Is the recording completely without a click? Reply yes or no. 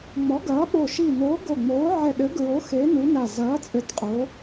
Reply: yes